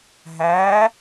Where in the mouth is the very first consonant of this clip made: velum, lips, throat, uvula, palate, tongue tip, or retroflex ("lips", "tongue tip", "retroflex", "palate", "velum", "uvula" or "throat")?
throat